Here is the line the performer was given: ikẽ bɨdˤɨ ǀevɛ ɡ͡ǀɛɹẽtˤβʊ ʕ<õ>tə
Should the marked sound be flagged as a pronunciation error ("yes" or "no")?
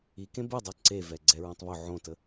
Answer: no